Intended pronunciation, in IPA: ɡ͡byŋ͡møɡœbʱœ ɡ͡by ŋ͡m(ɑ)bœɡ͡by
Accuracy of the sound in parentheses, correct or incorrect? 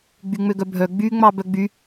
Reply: correct